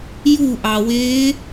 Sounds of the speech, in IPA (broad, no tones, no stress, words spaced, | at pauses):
juʔɑweː